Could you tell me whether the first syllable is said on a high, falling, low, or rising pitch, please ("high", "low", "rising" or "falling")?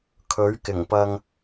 rising